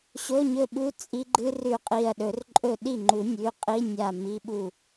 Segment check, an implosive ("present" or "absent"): present